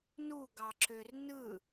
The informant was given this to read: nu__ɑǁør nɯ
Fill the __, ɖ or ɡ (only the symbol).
ɡ